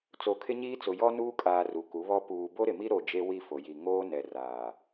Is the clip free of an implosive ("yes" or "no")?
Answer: yes